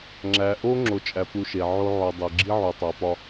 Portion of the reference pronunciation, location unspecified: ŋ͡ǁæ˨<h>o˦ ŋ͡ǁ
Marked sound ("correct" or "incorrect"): incorrect